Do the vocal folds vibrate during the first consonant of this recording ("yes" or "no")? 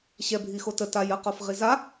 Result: no